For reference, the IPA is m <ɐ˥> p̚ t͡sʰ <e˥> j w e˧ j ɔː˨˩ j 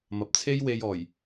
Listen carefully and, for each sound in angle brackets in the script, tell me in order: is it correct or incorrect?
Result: incorrect: ɐ˨, correct

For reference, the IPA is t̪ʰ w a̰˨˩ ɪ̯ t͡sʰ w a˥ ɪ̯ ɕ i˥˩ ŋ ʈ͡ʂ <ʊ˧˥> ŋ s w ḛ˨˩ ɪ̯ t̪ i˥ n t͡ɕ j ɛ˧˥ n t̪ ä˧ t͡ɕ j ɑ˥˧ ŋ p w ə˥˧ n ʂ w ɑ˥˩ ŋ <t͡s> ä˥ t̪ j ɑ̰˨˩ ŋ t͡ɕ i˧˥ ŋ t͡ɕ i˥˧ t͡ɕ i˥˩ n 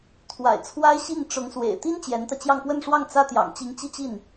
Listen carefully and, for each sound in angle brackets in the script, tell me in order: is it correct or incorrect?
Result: correct, correct

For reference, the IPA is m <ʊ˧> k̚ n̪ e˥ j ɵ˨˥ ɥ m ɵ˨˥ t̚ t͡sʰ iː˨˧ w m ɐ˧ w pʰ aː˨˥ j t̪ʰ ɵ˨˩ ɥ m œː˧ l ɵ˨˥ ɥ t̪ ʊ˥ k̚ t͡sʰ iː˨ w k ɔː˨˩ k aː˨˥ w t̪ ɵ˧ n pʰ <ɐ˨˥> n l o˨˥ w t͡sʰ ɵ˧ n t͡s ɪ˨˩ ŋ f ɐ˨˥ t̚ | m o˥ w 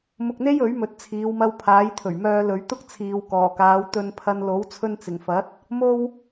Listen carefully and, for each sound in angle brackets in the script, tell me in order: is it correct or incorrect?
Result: correct, incorrect: ɐ˧

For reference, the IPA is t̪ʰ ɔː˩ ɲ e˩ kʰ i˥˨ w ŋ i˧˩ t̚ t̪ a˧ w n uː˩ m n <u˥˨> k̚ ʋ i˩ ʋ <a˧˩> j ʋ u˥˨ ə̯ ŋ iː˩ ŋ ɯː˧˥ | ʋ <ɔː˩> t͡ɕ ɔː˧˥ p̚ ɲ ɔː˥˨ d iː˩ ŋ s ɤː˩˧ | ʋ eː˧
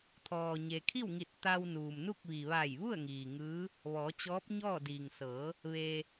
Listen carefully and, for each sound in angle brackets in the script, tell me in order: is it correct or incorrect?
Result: correct, correct, incorrect: ɔː˩˧

